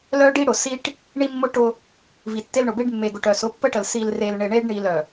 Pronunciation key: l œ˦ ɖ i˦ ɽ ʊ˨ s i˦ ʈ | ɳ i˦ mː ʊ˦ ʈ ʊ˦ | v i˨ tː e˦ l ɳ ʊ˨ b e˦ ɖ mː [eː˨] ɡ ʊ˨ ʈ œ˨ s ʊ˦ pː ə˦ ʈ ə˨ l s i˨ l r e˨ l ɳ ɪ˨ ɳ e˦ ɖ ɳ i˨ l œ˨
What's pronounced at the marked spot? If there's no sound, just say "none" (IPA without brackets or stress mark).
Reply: e˨